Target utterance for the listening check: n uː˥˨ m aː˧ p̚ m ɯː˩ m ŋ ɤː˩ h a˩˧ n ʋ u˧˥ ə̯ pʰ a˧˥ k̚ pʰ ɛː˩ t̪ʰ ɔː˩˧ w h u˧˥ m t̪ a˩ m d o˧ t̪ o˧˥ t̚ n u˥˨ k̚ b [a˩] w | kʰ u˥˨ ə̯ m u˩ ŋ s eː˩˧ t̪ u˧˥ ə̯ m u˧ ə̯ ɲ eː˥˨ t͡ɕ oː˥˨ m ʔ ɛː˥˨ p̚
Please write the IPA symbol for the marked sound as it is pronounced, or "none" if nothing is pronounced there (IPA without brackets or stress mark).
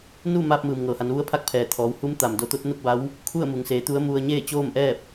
a˧˥